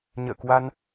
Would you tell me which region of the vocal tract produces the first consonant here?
palate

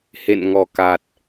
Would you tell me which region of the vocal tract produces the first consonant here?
throat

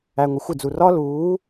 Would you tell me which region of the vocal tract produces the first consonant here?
velum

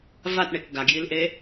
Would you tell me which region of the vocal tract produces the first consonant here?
lips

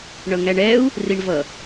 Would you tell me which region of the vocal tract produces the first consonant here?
retroflex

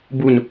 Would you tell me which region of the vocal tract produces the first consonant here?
lips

